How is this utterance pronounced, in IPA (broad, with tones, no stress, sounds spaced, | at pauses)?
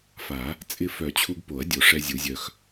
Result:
f a˨˩˦ | t͡sʼ ɪ˧ f œ˨˩˦ t͡ɕʰ u˧ ɡ p o˨˩˦ ɐ̯ dʲ o˨˩ ʂ ɛ˧ zʲ u˨˩˦ zʲ œ˧ x